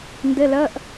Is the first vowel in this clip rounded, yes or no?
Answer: no